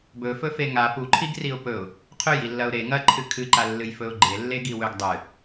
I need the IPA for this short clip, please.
b ɵ f ɵ f e ŋ a p u ǃʰ i ɡ r i ʊ̯ p ɵ ʊ̯ | qʰ ɵ j i lː ɐ ʊ̯ ɾ e ŋ ɐ ǃʰ ɨ kʰ ɨ ǃ a lː ɨ j f ɵ ʊ̯ ɡ͡ǃ e lː e ɡ i w ɵ ɡ dˤ ɨ

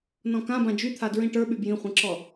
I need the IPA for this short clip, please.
n ɔ̃ k ã b ã d͡ʒ y t̪ʰ a d ɹ ĩ ʈ ə˞ ɓ y b j ĩ χʷ ĩ ǁ ɔ

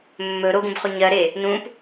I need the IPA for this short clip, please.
mː ɵ ɾ o ɡ ũ b χ o ɲ ɜ ɾ e | n ũ p

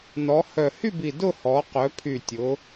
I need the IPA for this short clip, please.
n ɔ˩˧ h œ˨˩ h y˥˧ b i˨˩ d ʊ˥˧ h ɔ˩˧ q œ˩˧ pʰ y˨˩ tʲ ʊ˩˧

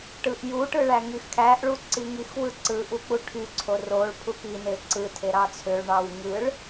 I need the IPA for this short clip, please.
ʈ ɯ ʔ j u ʈ ɯ ɭ æ ŋ y x kʰ æ ʔ ɭ u ǀ i ŋ i x w ɯ ǀ ɯ ʔ u k͡p u ʈʰ y ǀʰ o r o ɭ pʰ u k i n e ǀ ɯ tʰ e ɾ ɑ t͡sʰ ø ɭ ɳ ɑ w ŋ ɯ ɭ

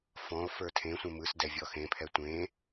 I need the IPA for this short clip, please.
f ɔ̃ o̯ f ə˞ tʰ ẽ sʷ ẽ m ɯ s d ɛ vʲ ɔ x ẽ pʰ ɛ tʷ ẽ

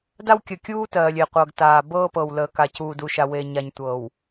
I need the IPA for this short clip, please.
d a˦ w kʲ əː˨ kʲ uː˦ t ɜː˨ lʲ e˨ qʷ ɤ˨ ɡ t aː˨ b ɤː˦ p ɤ˨ w l əː˨ k a˨ c uː˨ d u˨ ʃ a˨ w e˨ ɲ a˨ ɲ tʷ ɤː˨ w

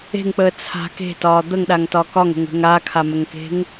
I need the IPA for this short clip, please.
e̤ ŋ k͡p əː t͡sʰ a̤ k e̤ t ɒː d̪ ə ŋ ɗ a ŋ t ɒ k ɒ ŋ ə̤ ŋ ə̤ ŋ a kʰ a m ə ŋ k e̤ ŋ

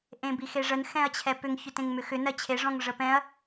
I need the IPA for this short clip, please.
ʔ ẽ b i x e ʐ ə n x ɛ̃ ɐ̯ t͡ɕʰ ɛ p ʏ ŋ ç ʏ t ẽ ŋ m ʏ x ʏ n ɜ t͡ɕʰ e ʐ ɔ̃ ŋ ʐ ə p ɛ̃ ɐ̯

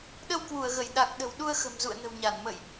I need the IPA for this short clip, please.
ɗ ə˧ w k w u˧˩ ə̯ ɣ ə˧˩ j ɗ a˨˩ k̚ ɗ ə̤˨˩ w ɗ u˧ ə̯ x ə̤˨˩ m z ṵ˧˨ ə̯ n ə̤˨˩ w ɲ a˧˩ n m ə̰˧˨ j ʔ

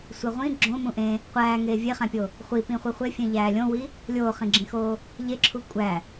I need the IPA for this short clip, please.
sʷ e ʁʷ ĩ ɡ͡ǁ õ m ũ ʔ ẽ | qʷ æː ŋ eː vʲ e χ æ̃ pʲ o | χʷ i p ĩ χʷ i χʷ e fʲ ẽ ʎ æː lʲ õ w i | lʲ oː χ ĩ ɡ͡ǁ ĩ x oː | ʎ e ǁʰ u kʷʼ æ

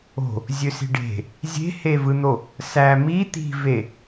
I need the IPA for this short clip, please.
o̤ | zʲ ø s i̤ ɖ e̤ | zʲ e̤ h e v ɯ n̪ o | s æ m i t̪ i̤ v e

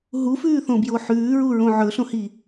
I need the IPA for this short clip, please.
ɦ u f ʉː θ õ b j o ħ ʉː ɹ u ɹ õ ʕ ɵ ɬ õ h i

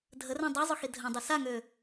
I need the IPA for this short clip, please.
dʱ ə r ɛ̃ dˤ a zˤ ʊ x i dʱ ɐ̃ dˤ ɪ s a ŋ ø

